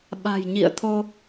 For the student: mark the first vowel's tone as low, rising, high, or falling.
low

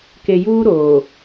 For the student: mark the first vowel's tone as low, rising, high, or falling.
low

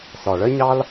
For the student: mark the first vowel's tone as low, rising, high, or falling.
low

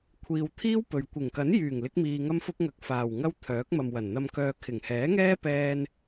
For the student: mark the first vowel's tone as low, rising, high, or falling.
low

